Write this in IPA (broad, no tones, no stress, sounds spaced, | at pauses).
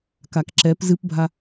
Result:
k a k ǁ ɛ p z ɨ p bʱ a